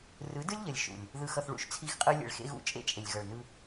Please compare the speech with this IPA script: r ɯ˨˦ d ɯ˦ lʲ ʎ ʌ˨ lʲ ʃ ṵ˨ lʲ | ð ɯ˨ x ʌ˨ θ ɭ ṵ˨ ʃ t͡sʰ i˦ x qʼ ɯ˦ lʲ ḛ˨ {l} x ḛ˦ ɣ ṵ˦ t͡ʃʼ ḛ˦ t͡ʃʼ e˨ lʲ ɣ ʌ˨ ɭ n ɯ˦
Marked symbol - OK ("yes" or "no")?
no